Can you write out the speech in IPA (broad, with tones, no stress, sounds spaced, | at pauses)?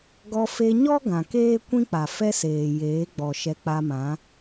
ɡ ɔ˧ f e˧ ɲ ɔ˦ ɡ ã˨ k eː˦ kʷ ĩ˦ k͡p a˨ f ɛ˦ s eː˨ j eː˨˦ ɡ͡b ɔ˨ ʃ ɛ˧ k͡p a˧ m ã˨˦